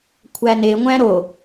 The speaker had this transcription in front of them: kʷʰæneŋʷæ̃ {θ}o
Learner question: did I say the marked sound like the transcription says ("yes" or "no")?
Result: no